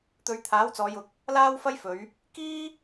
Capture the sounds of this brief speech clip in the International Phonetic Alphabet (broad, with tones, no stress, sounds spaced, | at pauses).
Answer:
t̪ ɵ˨˧ ɥ t̪ʰ aː˨˥ w t͡s ɔː˨˧ j ʊ˨ k̚ | l aː˥ w f ɐ˥ j f ɵ˨˧ ɥ | k iː˥